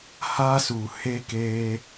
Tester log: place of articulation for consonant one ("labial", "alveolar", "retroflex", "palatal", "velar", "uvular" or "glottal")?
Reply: glottal